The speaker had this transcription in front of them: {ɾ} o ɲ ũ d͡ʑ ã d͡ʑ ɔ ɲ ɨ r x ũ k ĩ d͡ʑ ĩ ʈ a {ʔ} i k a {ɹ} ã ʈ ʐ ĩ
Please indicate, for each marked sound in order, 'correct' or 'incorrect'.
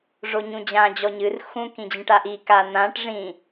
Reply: incorrect, correct, incorrect

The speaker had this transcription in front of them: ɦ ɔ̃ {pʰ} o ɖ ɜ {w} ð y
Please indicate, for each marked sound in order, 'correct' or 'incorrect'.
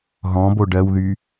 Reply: incorrect, correct

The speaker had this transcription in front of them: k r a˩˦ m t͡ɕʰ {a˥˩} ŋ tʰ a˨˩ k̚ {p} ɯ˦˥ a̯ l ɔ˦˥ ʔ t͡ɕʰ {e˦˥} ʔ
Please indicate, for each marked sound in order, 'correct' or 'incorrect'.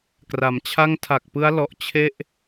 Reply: correct, correct, incorrect

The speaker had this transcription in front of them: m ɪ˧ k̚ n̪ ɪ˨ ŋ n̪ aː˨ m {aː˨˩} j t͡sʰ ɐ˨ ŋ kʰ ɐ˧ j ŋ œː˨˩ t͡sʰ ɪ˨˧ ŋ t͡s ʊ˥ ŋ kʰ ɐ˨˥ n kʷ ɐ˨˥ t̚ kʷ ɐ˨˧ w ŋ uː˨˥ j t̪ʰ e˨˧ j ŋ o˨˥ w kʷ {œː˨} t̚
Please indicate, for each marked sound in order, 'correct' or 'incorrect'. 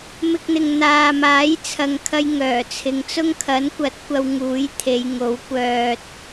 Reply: incorrect, incorrect

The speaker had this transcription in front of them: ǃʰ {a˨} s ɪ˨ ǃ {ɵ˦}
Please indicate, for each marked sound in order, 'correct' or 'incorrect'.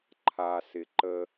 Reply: correct, incorrect

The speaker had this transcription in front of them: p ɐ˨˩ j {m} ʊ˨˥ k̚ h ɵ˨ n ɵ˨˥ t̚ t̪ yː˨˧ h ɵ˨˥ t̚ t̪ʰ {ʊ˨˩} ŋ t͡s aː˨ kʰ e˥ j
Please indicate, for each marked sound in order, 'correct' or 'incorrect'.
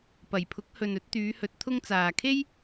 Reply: incorrect, incorrect

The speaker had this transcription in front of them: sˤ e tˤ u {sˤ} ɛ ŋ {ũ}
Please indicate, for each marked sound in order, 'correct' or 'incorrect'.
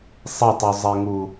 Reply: incorrect, incorrect

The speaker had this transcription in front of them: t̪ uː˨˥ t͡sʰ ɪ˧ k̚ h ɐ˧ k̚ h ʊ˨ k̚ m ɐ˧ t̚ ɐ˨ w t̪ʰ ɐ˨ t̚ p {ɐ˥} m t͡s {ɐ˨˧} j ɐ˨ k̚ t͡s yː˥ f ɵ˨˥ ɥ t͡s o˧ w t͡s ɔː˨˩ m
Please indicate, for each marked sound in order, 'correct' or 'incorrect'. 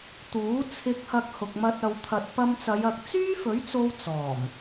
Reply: incorrect, correct

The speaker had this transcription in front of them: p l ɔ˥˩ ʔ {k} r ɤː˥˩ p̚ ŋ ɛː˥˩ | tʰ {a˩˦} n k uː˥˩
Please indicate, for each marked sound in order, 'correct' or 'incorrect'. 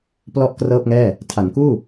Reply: correct, correct

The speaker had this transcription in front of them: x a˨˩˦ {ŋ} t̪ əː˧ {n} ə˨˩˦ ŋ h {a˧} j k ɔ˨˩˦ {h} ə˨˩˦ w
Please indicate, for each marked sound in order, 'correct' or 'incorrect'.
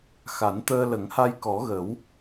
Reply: incorrect, incorrect, correct, incorrect

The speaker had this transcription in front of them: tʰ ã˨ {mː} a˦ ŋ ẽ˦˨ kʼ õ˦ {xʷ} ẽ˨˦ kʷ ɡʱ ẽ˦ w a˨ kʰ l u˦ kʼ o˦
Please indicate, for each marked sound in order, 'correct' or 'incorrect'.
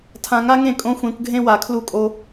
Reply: incorrect, correct

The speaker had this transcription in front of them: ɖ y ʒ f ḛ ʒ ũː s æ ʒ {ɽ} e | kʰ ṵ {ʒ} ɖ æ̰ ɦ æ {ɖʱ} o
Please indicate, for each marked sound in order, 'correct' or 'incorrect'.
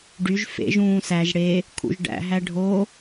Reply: correct, correct, correct

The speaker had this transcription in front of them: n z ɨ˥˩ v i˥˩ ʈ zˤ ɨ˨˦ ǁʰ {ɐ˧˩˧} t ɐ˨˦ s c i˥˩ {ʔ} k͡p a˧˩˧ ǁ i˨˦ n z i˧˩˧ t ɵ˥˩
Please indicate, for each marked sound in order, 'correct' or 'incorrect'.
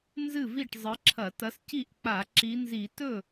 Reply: correct, correct

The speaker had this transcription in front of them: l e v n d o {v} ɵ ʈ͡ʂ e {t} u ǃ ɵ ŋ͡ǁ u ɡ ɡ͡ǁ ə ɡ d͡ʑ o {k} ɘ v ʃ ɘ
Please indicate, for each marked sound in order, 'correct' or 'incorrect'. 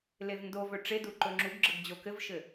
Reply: correct, incorrect, correct

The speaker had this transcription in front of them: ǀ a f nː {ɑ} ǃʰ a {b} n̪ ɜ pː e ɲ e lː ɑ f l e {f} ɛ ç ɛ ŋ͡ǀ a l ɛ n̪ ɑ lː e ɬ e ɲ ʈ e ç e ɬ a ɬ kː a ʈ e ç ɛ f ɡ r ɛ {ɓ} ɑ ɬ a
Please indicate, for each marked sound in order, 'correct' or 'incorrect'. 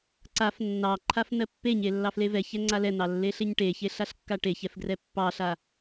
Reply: correct, incorrect, incorrect, incorrect

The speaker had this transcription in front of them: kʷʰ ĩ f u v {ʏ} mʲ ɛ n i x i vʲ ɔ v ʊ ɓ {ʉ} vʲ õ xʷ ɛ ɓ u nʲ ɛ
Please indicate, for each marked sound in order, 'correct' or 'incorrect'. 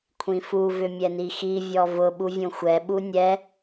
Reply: correct, incorrect

